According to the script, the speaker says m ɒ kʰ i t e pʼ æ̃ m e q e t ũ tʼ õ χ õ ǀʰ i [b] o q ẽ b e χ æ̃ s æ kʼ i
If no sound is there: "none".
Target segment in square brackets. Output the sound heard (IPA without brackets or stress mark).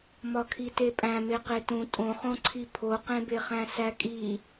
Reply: pʰ